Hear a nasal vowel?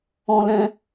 yes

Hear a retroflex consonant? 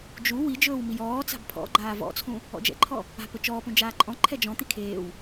no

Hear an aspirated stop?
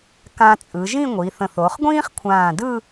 yes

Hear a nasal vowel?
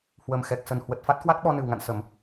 no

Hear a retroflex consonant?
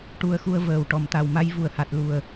yes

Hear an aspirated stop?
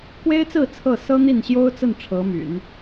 yes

